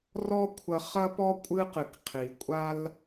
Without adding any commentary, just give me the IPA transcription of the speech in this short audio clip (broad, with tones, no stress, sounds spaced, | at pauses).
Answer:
r ɔ˥ kʷʰ ɐ˧ χ ɐ˥ p ɔ˥ kʷʼ ɨ˥ q ɨ˩ k qʰ i˩ kʷʼ a˥ l